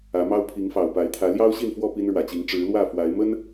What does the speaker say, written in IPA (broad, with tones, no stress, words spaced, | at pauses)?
ä˨˦mɑ˦ʊ̯ pʰi˨˦ŋfɑ˨˩ʊ̯pa˨˦ɪ̯t̪ʰä˨˦ ljɑ˦ʊ̯ɕi˥˨nfwɔ˥˨ pi˦nɻwä˨˩t͡ɕi˨˦ŋ ʈ͡ʂɻ̩˨˦lwä˥˨fwa˨˦ɪ̯ mə˦n